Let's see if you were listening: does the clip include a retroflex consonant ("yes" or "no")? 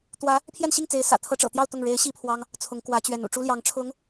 yes